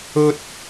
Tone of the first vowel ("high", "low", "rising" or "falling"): high